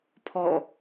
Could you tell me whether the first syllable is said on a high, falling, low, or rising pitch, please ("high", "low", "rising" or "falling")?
falling